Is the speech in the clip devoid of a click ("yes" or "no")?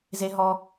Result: yes